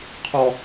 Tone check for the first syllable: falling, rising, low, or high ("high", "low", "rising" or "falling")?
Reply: high